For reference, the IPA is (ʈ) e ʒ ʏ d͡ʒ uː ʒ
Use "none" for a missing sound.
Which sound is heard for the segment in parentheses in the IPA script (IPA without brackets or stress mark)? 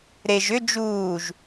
ɾ